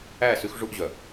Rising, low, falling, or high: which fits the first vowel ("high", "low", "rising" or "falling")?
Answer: falling